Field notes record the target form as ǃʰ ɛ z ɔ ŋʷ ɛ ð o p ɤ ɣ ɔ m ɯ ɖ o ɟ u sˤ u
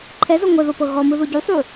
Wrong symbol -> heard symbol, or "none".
ɖ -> ð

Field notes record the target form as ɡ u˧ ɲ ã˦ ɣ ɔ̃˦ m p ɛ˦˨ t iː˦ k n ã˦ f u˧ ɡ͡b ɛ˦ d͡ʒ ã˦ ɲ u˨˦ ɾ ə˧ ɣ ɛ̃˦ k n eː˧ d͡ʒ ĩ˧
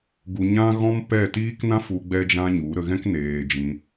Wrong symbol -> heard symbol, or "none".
none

